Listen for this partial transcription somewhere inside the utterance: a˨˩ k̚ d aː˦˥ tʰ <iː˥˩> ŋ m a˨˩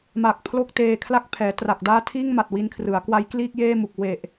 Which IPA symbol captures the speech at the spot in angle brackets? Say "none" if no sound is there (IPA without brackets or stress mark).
iː˥˩